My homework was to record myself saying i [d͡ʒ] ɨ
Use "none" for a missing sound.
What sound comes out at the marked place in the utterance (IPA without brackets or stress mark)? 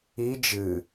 d͡ʒ